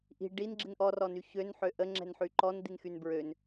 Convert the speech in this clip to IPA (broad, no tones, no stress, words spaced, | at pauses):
ʔi̤ ɖinɡ͡ǁin ʔɔrɔny çønħø ʔəŋ͡ǁɛ̤nħy ǃɔnd̪inxyn bɹøn